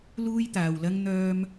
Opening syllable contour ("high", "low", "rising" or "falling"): high